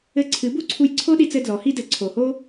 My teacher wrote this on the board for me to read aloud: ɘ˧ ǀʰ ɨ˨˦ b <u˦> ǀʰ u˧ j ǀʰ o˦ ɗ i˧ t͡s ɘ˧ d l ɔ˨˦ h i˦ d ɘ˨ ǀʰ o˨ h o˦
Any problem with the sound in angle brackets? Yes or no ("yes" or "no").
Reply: yes